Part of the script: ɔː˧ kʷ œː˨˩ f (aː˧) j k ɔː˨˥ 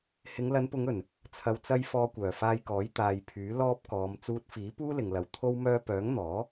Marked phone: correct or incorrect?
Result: correct